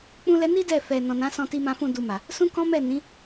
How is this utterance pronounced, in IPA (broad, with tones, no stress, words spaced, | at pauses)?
k͡pũ˦lɛ˦ ni˦ dɛ˦˨ fɛ˨ nɔ̃˨nã˨˦ sɔ̃˧ti˧mã˧fũ˧ du˧ma˨ | sũ˦kɔ̃˦ mɛ˦˨ nĩ˨˦